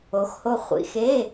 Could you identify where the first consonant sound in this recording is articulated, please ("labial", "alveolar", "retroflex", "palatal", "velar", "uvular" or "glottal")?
velar